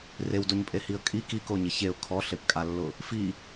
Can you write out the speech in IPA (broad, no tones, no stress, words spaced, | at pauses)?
rewdoɲpʼehiə̯ kʼi kikoɲɪ çeʊ̯ kʰɔɬepkʼalːʊ | fi